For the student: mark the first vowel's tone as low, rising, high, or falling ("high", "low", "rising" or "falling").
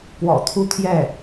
low